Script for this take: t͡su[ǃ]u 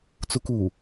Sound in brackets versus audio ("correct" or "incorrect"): incorrect